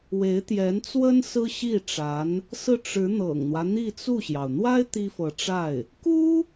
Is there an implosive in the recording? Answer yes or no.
no